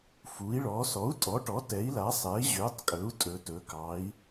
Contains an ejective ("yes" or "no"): yes